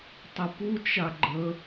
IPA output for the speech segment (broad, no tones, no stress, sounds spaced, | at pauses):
tˤ ɪ p u t͡ʃ a ɡ͡ǃ ə